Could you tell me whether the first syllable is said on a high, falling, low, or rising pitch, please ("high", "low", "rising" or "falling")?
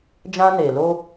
high